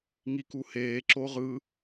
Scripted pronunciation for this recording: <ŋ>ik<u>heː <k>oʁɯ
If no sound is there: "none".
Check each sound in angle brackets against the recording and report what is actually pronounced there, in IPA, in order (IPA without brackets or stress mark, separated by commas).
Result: ŋ, u, ǁ